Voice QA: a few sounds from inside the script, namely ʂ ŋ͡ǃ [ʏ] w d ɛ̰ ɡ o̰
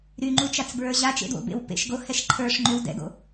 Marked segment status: correct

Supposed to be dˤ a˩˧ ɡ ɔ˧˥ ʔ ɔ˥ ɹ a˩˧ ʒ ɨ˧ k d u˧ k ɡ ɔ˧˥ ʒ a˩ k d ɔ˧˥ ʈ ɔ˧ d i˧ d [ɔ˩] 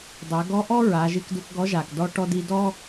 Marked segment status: incorrect: ɔ˥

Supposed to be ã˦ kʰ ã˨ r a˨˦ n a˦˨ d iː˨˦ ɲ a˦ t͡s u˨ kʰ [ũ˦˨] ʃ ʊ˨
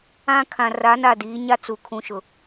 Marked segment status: incorrect: ũ˨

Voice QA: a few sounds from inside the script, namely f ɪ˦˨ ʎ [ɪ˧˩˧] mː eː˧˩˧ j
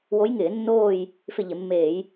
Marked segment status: correct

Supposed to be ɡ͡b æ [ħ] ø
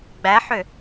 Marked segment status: correct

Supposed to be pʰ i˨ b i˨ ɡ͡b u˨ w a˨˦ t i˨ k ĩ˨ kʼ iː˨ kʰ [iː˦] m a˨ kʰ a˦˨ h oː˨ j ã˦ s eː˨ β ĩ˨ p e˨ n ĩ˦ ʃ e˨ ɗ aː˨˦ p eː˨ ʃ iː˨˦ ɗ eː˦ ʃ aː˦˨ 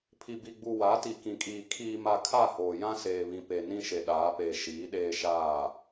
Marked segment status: incorrect: iː˨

